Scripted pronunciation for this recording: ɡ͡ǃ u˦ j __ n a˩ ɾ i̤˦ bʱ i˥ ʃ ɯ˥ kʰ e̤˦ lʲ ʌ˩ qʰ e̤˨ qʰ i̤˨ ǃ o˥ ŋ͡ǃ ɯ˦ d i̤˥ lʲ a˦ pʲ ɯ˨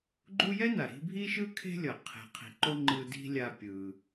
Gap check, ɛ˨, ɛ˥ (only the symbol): ɛ˥